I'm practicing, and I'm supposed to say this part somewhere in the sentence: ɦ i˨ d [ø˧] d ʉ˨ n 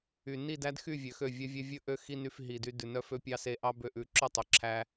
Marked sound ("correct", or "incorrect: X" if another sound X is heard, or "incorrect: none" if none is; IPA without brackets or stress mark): incorrect: y˧